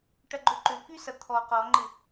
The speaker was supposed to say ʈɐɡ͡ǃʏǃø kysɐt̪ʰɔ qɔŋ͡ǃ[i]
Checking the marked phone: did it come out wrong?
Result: yes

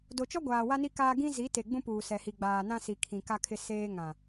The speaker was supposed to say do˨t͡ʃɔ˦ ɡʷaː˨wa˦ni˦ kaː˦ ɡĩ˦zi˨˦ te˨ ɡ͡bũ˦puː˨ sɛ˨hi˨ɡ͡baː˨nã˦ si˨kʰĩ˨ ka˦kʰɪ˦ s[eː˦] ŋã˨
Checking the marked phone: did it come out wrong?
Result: no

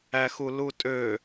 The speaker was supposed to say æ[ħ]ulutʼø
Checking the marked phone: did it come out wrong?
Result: yes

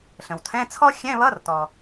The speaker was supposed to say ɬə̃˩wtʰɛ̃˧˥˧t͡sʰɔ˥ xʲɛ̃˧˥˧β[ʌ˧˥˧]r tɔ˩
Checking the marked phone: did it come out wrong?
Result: no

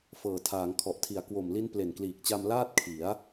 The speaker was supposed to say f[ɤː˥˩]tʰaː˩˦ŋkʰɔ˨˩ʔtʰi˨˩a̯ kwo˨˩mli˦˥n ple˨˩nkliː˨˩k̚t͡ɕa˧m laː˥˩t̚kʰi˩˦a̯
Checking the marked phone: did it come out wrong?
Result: yes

